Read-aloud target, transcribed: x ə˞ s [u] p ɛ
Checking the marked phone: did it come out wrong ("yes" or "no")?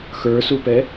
no